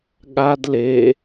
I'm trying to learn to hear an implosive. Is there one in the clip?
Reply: yes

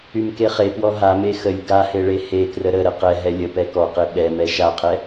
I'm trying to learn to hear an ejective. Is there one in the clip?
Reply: no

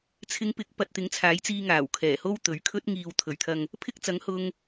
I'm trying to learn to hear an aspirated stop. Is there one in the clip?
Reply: yes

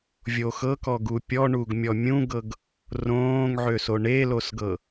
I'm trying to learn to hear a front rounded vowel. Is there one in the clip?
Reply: yes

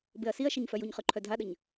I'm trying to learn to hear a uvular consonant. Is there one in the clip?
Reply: yes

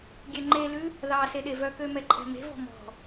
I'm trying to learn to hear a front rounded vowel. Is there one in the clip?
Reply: yes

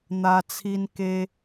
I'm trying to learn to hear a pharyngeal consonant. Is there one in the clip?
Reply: no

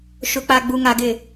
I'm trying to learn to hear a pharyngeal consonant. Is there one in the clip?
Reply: no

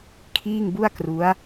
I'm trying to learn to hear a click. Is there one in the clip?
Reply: no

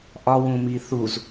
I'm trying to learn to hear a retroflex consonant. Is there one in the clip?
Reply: no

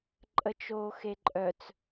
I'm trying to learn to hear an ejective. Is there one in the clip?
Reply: yes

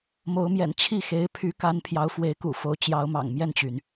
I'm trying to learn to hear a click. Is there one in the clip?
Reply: no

